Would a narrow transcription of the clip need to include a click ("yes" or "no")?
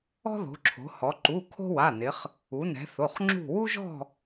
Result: yes